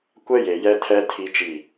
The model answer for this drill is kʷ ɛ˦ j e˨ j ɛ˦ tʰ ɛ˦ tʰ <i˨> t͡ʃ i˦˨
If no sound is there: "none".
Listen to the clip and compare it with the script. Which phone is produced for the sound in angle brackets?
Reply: i˦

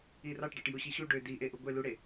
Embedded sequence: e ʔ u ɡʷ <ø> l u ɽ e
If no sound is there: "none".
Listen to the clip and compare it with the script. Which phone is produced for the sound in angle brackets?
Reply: e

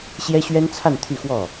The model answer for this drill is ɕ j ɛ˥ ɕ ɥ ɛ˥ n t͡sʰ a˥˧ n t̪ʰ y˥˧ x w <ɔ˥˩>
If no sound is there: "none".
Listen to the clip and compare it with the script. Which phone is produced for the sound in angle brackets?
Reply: ɔ˥˩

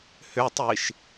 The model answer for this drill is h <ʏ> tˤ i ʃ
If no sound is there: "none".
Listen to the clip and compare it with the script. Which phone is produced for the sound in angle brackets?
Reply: ʏ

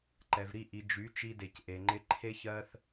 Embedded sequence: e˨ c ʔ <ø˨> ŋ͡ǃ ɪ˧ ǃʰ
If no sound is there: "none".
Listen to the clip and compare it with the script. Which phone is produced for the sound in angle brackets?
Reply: e˨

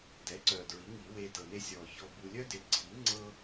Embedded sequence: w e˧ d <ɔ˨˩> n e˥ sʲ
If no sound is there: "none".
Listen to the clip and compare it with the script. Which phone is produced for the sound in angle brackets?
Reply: ɤ˨˩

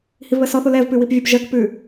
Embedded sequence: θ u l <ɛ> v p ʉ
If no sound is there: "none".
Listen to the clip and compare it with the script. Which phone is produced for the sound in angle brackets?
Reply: ɛ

